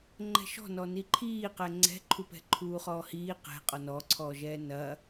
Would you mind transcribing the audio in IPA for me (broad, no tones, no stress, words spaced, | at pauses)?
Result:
ŋ͡ǃɛ̤ʃɔ̤nɔ niǃʰiː qɛŋ͡ǀɛ̤ǃʰupɛ̤ ǃʰuːχɔːhiː qɛ̤ qʼɔnɔǀʰɔːʒɛː nɐ